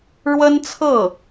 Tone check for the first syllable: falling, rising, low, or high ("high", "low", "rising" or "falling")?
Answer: high